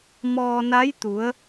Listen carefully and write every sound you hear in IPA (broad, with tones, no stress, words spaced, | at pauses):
mɔː˧na˧˥jt̪u˩˧ə̯